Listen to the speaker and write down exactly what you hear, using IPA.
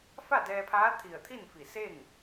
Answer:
f a˥˨ d ɛː˧ pʰ aː˧˥ t̪ʰ i˧˩ ə̯ t̪ʰ i˥˨ n f i˧˩ s e˥˨ ŋ

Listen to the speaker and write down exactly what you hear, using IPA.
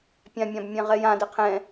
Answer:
pʲ ã mʲ ã b mʲ ɛ̃ ʁ ɛ j ã d ɛ qʰ ɛ̃

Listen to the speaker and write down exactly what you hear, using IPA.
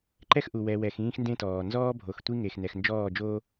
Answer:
ǃ ɛ˦ x ʔ u˨ w ɛ˨ w ɛ˨ x ĩː˦ x n d ẽ˦ t ɔː˨ n z ɔː˦ bʱ o˨ x tʷ i˦ ŋ e˨ x n ɛ˨ x n d͡ʒ ɔː˦˨ d͡ʒ oː˦

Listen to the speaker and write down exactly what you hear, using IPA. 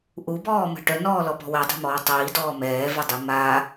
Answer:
ʔ u b ɔː m ə̤ ʈ œ n ɔː l ɔ p ɔ̤ w ɛ dˤ e̤ m ɔː tˤ iː d ɔː m ɛː v ɛ dˤ i m a

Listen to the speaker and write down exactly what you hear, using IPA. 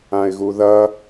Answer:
ã ɪ̯ ɣ u ð ɐ

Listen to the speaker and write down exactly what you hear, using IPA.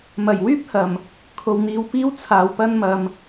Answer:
m ɐ˨˩ j w yː˥ p̚ h ɐ˨˩ m | kʰ o˨ w n̪ iː˨˧ w p iː˥ w t͡sʰ aː˨ w p ɐ˥ n m ɐ˧ m

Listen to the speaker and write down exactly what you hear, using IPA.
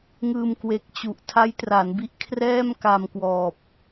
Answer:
ŋ ɯː˧ m k w e˨˩ k̚ t͡ɕ u˨˩ ʔ tʰ a˦˥ j t r a˩˦ n b i˦˥ ʔ kʰ r ɛː˥˩ m k a˧ m k w ɔː˨˩ p̚

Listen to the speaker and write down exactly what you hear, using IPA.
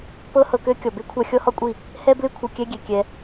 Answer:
p ɤ˦ h ɤ˧ k ø˦ kʲ ɔ˨ b e˦ kʷʰ a˧ xʲ ɔ˦ h ɔ˦ kʷʼ i˦˨ | h ɛ˦ b l ɨ˦ kʷʰ ɨ˨ kʲ ɛ˦ ɡʲ e˨ kʲ ɛ˧

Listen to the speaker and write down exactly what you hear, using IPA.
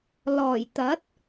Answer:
l ɔː˨˩ j t̪ ɐ˨˥ t̚

